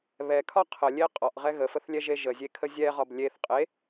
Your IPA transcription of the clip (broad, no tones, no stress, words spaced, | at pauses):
βɛkʰɒ qʰəlʲe qʼɒʔʁɛ ɣəfəθlʲɛʒe ʒəzʲekʰə zʲɛʁɒb lʲeθ qʼe